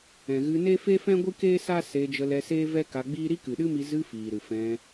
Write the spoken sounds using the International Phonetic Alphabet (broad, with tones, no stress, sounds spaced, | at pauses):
ɛ̃˨ ɣ ɨ˧ n e˦ f e˦ f ɛ̃˦ ɡʷ ɨ˦ k eː˦ s a˦ s eː˧ d͡ʒ ə˧ l ɛ˧ s eː˦ v ɛ˦ k a˧ ɡ͡b iː˦ ɾ i˦ k ɨ˨ ɗ ɨ˦ m i˧ z ɨ˧ f iː˨ ɾ ɨ˨ f ɛ̃˧